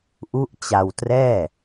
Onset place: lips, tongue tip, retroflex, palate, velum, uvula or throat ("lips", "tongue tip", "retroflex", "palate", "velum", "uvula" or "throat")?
throat